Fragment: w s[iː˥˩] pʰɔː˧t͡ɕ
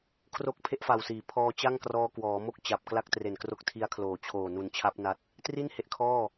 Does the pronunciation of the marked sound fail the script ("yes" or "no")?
yes